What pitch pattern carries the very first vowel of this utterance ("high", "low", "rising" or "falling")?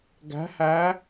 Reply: rising